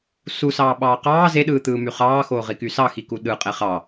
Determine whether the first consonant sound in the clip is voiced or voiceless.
voiceless